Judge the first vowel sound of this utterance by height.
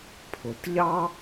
high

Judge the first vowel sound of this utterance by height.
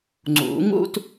high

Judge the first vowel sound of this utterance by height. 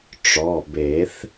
mid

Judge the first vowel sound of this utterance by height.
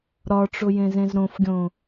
low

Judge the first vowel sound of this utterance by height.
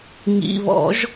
high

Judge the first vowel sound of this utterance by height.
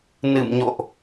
high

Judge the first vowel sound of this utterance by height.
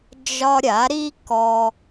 low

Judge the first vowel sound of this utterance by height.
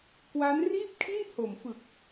low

